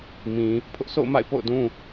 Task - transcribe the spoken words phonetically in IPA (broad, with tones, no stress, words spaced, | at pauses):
mĩ˨ | pʰʊ˦ʔsʰo̰˦˨ʊ̯ma̰˦˨ɪ̯ po̰˦˨ʊ̯dũ˦